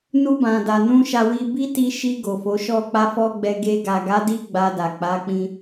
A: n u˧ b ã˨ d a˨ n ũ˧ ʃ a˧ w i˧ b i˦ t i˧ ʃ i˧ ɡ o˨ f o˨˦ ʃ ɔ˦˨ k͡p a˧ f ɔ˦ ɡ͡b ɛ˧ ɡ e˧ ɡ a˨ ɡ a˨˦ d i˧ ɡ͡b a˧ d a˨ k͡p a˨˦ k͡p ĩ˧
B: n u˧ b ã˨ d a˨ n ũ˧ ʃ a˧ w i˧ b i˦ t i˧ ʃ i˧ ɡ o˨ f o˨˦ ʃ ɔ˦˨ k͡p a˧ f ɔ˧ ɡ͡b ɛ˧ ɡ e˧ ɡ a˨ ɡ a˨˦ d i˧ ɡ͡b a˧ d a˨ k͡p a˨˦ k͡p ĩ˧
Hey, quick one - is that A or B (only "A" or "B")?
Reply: B